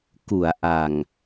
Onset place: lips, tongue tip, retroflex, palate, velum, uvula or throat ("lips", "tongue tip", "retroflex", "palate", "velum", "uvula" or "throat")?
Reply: velum